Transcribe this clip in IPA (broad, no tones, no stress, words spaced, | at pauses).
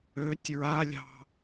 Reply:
øtʲ ɹalʲɑ̤